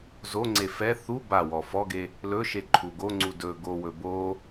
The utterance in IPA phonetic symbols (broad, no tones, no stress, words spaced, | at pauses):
zoŋ͡ǀe fɛ θu bawɔ fɔɡe | lɵʃe ǃʰuɡoŋ͡ǀu dɵ ɡowɵ bo